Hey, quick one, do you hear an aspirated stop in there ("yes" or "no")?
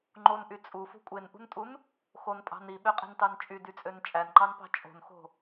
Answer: no